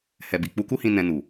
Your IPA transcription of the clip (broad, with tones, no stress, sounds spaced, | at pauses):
h ɛ˨ b i˨ k͡p u˧ k u˦ h ĩ˧ n ɛ̃˧ n u˨